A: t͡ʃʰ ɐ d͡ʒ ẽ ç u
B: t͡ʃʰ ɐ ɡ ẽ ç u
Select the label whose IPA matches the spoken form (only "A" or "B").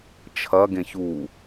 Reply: B